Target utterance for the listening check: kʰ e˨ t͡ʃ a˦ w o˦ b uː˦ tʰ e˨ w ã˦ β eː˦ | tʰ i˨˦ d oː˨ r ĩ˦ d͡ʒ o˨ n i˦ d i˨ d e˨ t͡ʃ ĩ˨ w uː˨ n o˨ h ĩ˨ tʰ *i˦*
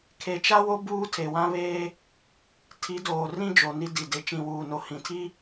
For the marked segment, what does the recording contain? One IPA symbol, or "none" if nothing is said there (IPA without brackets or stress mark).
i˦